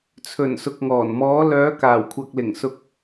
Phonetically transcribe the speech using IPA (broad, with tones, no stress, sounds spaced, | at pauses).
t͡sʰ ɵ˨˩ n s ʊ˨ k̚ ŋ ɔː˨˩ n m ɔː˨˧ l œː˨˧ k aː˨˩ w kʷʰ ɐ˨ k̚ l ɪ˨˩ ŋ s ʊ˧ k̚